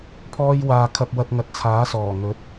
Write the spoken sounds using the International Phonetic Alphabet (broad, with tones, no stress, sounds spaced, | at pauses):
pʰ ɔː˧ j w aː˨ kʰ ɐ˧ p̚ w ɐ˧ t̚ ŋ ɐ˨˥ t̚ t͡sʰ aː˨˥ s ɔː˨˩ ŋ ɵ˨˥ t̚